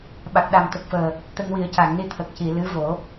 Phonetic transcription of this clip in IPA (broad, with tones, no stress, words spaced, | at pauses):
ɓa˨˩k̚ɗa˨˩m t̪ə˨˩k̚fəː˨˩ | t̪ə˧ŋwi˨˩˦ə̯ca˨˩˨ŋni˧˥ t̪ʰə˨˩k̚ci˨˩˨ lɨ˧˥vo˨˩˦